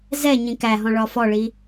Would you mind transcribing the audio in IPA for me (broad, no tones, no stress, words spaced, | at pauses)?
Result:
zɛɲĩ kæɦɔ̃ ɭɒfɔɭi